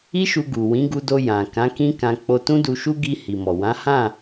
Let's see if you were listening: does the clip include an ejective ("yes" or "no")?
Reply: no